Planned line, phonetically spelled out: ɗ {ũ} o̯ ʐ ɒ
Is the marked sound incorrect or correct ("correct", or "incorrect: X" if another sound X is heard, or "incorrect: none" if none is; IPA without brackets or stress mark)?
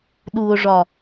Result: incorrect: u